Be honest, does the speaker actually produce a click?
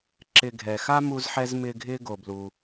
yes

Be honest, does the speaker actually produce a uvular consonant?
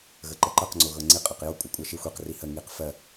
yes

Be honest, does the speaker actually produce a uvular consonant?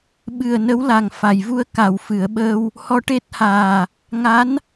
no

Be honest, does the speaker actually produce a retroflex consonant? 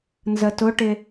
yes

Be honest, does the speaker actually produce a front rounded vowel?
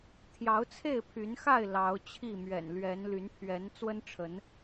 yes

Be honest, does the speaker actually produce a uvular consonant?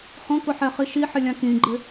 yes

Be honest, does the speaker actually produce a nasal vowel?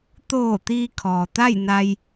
no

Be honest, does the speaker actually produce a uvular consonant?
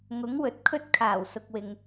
no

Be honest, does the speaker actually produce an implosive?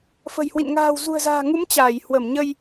no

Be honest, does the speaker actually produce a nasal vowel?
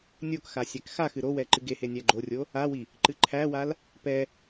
no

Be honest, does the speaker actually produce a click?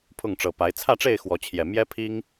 no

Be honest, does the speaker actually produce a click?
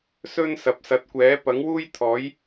no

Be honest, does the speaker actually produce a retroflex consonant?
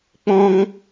no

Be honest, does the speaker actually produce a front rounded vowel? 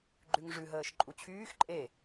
yes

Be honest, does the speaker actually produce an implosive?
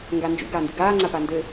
no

